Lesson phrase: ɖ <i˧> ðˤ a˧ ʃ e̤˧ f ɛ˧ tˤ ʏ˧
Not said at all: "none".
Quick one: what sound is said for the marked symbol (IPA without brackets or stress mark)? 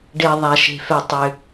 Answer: e˧